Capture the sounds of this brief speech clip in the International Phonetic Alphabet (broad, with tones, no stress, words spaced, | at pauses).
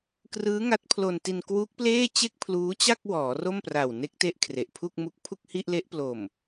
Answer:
krɯː˦˥ŋa˦˥t̚pʰlo˧nti˧n kwu˦˥k̚pleː˥˩t͡ɕe˥˩k̚pʰluː˦˥ t͡ɕa˥˩k̚wɔː˩˦ ro˥˩mpra˨˩wne˦˥k̚te˦˥ʔ kʰre˨˩ʔpʰu˥˩k̚mu˦˥k̚ pʰu˥˩k̚hi˥˩ʔle˦˥ʔplo˨˩m